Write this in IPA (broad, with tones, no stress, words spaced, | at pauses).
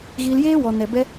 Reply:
ɣiː˧ljeː˦ wɔ˧ nɛ˨bɛ˧